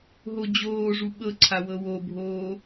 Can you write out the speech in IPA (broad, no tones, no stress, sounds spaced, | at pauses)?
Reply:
ɦ o d͡ʑ oː ʐ u ɓ ɤ ǀʰ a w ɤ w o bʱ oː